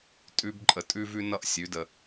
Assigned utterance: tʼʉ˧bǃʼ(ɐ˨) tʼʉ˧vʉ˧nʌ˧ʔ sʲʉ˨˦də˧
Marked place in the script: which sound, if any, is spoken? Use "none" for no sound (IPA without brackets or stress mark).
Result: ə˨